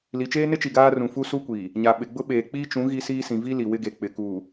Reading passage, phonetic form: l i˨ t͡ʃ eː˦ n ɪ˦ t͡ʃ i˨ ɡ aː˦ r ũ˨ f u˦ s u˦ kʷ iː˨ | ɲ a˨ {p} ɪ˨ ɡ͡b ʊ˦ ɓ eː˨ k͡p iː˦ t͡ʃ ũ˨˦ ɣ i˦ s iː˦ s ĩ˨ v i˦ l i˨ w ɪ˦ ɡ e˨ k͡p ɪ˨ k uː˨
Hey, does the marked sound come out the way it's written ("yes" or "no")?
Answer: no